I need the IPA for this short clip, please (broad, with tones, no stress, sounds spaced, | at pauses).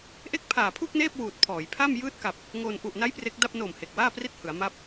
ʔ e˦˥ k̚ pʰ aː˨˩ pʰ uː˥˩ k̚ n eː˥˩ p̚ w uː˨˩ t̚ pʰ ɔː˩˦ j pʰ a˥˩ m j ɯː˦˥ t̚ k a˨˩ p̚ | ŋ oː˧ n ʔ u˨˩ ʔ n a˦˥ j p r e˦˥ k̚ d a˥˩ p̚ n o˨˩ m h e˨˩ k̚ w aː˥˩ p r i˥˩ t̚ h ɯ˩˦ a̯ m a˦˥ p̚